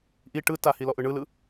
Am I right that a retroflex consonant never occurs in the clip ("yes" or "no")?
no